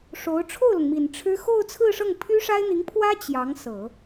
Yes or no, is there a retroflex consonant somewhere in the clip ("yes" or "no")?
yes